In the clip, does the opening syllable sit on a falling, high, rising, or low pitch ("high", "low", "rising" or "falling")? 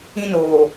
high